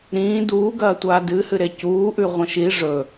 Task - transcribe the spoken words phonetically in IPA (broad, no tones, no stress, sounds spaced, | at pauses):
ɾ ĩː d uː ɡ ɐː tʷ aː d ɨ h ɨ ɾ e c uː ʔ ʉ ʁʷ ɐ̃ ʃ i ʐ ɵ